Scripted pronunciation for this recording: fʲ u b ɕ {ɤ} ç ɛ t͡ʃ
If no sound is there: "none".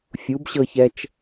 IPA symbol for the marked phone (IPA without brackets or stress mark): ɤ